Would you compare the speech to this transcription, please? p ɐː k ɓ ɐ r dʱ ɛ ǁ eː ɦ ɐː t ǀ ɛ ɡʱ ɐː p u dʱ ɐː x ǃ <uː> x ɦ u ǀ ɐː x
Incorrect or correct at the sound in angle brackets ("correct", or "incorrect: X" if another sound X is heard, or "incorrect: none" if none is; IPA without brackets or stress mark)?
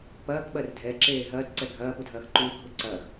correct